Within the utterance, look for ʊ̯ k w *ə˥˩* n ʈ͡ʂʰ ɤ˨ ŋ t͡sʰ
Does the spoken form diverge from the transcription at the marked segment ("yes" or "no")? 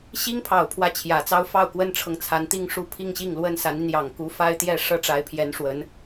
yes